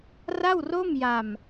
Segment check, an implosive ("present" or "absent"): absent